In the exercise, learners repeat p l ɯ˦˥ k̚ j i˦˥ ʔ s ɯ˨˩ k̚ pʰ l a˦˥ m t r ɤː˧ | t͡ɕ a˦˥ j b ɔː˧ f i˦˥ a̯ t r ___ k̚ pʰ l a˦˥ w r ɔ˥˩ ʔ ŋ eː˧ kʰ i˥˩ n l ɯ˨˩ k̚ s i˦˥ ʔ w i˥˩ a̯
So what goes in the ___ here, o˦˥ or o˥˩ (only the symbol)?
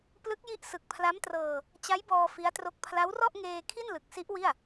o˦˥